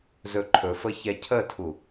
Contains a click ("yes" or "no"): yes